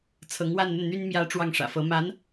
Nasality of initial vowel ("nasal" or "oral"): oral